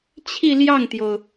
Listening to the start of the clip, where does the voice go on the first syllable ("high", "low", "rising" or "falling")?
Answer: falling